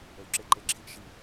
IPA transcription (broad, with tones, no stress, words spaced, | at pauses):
ə˨wǁe˦ǃe˨ǁʰi˦ʔ ʃi˨